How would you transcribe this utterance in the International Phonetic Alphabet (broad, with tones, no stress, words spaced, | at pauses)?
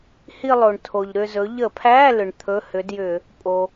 hi˥˧lˠo˩ɳtʰo˩ʎ ɾʏ˥˧zɵ˨˥ ʎə˧˩˧pʰæ˧˥˧ lʏ˩ɳ t̪ʰɵ˧˥˧hʏ˨˥djʏ˧˩˧ | pʼo˩